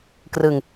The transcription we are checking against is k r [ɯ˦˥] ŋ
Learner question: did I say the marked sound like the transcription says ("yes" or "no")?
no